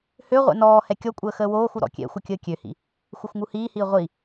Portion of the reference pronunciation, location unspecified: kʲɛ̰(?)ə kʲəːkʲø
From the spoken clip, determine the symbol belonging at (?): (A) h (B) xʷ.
B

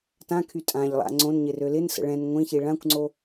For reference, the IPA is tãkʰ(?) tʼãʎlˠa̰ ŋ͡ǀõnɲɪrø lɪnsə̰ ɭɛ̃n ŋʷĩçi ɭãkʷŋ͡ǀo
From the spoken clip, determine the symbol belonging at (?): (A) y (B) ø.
A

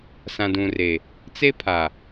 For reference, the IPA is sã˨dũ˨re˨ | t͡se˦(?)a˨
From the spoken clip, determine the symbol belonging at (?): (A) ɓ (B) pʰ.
B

